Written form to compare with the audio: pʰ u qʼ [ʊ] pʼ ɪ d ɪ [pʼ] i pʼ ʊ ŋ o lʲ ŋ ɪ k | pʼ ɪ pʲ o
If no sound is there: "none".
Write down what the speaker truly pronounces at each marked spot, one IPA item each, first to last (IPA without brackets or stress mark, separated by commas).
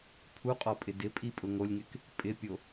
ɔ, pʼ